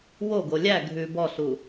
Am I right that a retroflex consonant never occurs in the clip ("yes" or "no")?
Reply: yes